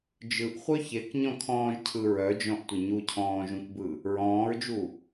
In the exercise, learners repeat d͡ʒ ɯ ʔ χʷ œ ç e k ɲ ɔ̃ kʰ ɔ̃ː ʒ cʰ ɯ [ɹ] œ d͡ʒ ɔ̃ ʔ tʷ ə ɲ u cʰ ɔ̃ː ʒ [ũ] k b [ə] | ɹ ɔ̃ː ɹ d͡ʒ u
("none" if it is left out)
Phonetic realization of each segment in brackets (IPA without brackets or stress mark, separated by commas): ɹ, ũ, ɯ